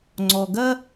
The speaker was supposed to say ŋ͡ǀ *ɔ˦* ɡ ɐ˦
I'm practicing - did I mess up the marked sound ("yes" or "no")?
yes